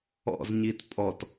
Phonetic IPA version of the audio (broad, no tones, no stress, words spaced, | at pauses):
ɔ̰zɲit pʼɔt